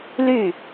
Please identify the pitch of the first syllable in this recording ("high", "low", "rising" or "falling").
falling